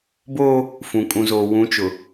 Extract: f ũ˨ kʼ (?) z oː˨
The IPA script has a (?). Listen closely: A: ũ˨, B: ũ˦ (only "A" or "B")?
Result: A